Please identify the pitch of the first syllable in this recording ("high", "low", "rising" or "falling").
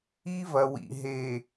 high